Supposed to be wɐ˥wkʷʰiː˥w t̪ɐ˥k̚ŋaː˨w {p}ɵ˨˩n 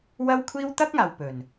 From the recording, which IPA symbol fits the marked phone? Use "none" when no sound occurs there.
p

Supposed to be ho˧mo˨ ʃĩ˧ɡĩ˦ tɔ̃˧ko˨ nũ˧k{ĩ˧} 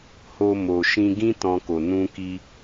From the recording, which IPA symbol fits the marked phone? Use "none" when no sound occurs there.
i˧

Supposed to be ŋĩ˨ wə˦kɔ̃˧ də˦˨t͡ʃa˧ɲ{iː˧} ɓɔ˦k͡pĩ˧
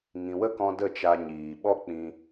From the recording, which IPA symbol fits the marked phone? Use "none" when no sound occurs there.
iː˨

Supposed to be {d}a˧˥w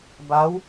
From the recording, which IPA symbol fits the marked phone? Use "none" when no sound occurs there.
b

